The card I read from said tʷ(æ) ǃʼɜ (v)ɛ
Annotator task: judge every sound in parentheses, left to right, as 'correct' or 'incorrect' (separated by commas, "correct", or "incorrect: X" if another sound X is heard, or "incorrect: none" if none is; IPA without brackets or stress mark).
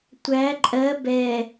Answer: correct, incorrect: b